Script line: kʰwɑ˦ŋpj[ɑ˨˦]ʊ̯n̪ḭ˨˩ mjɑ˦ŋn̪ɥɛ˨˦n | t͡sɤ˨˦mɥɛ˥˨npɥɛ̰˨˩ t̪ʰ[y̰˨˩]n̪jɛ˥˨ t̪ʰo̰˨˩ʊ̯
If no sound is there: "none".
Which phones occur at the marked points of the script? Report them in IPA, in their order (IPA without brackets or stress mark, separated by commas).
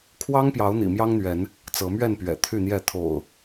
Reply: ɑ˨˦, y˥˨